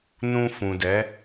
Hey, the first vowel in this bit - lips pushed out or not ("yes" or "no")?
yes